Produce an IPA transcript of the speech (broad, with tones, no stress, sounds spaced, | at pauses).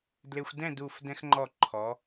d l e˧ xʷ d ɛ̃˥˧ d u˧˩ f d ɛ̃˧ x ŋ͡ǃ ɔ˧˩ ǃʰ ɔ˩˧